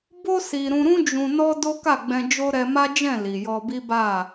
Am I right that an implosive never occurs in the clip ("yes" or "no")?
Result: yes